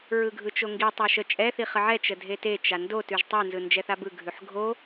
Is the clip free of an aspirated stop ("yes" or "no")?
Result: yes